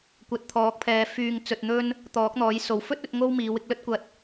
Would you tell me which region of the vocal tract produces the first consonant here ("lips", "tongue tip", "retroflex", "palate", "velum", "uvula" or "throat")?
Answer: velum